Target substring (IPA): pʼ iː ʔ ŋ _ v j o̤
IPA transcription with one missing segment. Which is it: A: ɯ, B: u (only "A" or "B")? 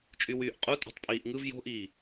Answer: A